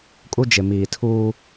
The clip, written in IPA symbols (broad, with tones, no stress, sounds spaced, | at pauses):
kʼ u˦ d͡ʒ ɪ˨ m iː˨ tʰ uː˦